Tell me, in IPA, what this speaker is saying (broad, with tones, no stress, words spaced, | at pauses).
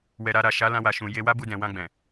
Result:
wɛ˨ ɾa˧ ɾa˨ ʃa˨˦lã˧wa˨ʃũ˨ je˧wa˦bu˧ dɛ̃˨ wã˧ɡ͡bɛ̃˨